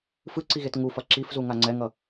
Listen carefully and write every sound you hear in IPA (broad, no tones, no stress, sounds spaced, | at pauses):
f ɯ ǀ i ɣ e t ŋ u f ʌ ǁ i f z u ŋ a ŋ͡ǀ ɛ ŋ ʌ